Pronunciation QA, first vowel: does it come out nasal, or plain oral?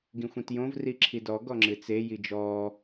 nasal